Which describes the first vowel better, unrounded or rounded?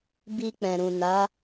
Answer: unrounded